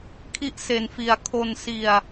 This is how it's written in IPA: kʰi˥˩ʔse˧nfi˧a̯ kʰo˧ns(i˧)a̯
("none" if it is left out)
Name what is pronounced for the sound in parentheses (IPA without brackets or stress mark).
i˧